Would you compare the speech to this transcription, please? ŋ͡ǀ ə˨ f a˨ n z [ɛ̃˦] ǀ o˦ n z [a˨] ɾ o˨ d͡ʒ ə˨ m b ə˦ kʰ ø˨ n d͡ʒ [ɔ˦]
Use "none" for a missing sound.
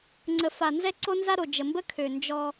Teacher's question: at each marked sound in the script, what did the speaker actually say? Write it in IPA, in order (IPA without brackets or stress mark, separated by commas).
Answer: ɛ˦, a˦, ɔ˦